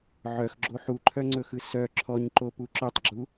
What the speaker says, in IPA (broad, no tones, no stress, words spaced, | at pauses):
ʕœxɡ͡ǁo ħuǃʰœŋ͡ǀɵxɯ sœ ǁʰɔɲǃopu ǁœtˤɡ͡ǁu